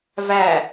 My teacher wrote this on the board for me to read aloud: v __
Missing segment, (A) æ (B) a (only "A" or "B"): A